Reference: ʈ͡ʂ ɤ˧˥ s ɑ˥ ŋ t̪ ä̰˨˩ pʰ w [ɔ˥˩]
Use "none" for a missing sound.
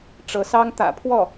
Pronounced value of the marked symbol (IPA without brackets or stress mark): ɔ˥˩